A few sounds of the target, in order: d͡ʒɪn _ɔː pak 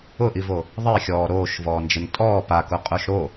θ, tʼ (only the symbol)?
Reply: tʼ